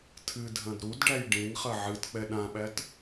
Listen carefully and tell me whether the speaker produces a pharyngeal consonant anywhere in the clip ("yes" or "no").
yes